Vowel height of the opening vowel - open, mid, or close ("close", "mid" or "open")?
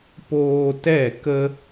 mid